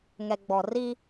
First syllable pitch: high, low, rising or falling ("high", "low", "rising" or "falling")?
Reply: low